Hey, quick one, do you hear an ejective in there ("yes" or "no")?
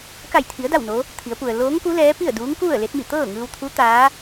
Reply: no